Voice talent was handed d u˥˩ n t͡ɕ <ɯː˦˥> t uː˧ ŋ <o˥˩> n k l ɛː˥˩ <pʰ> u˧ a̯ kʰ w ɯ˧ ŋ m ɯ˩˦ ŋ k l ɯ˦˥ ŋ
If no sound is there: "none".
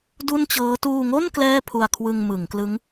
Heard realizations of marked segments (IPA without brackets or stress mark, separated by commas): ɤː˦˥, o˥˩, pʰ